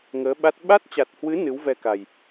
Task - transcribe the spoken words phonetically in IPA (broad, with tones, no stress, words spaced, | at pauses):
ŋəː˨˦ɓa˦˥t̚ ɓa˦˥t̚t͡ɕa˨˩t̚hwɨ˨˦ nɨ˨˦wvɛ˧ka˨˩j